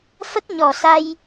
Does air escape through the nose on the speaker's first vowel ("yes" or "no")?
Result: no